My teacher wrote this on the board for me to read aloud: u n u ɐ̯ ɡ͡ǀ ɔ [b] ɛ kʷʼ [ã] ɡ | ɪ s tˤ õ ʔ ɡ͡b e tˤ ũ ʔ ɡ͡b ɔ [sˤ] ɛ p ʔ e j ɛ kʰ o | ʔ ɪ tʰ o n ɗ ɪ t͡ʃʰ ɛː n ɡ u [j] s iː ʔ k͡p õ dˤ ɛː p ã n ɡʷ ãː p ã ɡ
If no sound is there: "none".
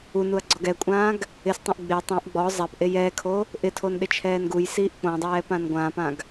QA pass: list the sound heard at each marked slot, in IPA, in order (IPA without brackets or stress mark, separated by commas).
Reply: ɡ, ãː, zˤ, j